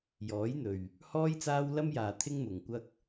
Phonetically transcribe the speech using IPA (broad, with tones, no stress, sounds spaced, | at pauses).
j ɔː˨˥ j n̪ ɵ˨ ɥ | h ɔː˥ j t͡s aː˥ w l ɐ˥ m j aː˨ t̪ʰ ɪ˥ ŋ m ʊ˨ ŋ kʷ ɐ˥ k̚